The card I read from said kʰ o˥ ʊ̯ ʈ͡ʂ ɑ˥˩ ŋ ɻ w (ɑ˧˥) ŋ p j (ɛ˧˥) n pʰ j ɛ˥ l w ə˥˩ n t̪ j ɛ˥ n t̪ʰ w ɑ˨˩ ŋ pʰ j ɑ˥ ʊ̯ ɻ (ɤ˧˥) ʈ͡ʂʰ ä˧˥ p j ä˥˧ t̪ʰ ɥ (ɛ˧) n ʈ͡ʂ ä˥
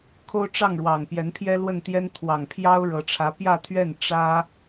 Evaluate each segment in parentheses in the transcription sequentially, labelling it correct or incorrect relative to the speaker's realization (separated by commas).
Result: incorrect, correct, correct, incorrect